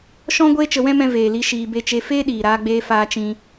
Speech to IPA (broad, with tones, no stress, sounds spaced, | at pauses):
ʃ ɔ̃˦ ɡʷ eː˦ t͡ʃ ə˧ w ɛ̃˦ m ɛ̃˧ v eː˨ l i˧ ʃ iː˧ b e˦ t͡ʃ e˦ f eː˦ ɗ iː˨ ɾ aː˧ ɡ͡b eː˧ f aː˧ t͡ʃ ĩ˧